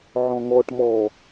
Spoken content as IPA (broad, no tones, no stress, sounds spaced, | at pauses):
ʕ ɔ̃ ŋ ɔ ʈ m ɔ